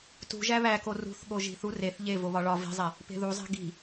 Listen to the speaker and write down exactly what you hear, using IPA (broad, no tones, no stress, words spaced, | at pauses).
tṳ ʒæβæko rṳθɠo ʒi̤θu reθ ʎe voβɒɭɒ vi̤zˤe | pe̤ðuzˤe̤ ɡi̤